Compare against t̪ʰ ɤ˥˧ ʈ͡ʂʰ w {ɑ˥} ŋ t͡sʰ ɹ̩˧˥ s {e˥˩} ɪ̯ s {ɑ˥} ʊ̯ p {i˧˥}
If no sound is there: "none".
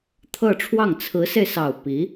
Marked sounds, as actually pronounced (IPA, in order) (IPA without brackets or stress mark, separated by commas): ɑ˥˩, e˧, ɑ˨˩, i˧˥